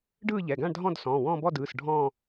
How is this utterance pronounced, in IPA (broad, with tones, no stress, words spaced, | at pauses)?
ɖɯː˥˧ʎɛ˩˧˩ɡã˥˧ɳdʱɔ̃˥˧d sɔ̃ː˩˧˩wɔ̃ː˥˧bɔ˥˧dɯː˩˧˩s ɖʱɔ̃ː˥˧